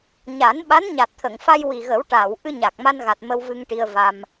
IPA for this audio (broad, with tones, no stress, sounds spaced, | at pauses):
ɲ a˨˩˦ n ɓ a˧˥ n ɲ a˨˩ t̚ t̪ʰ ə˨˩˨ ŋ f a˧ j w i˨˩ ɣ ə˨˩˦ w ʈ aː˨˩˨ w ʔ ɨ˧ ɲ a˨˩ k̚ m a˧ n ɣ a˨˩ t̚ m ə˧ w v ɨ˧ ŋ ʈ i˧ ə̯ v a˧ m